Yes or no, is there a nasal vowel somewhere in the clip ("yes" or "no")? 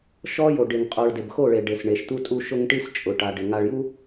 no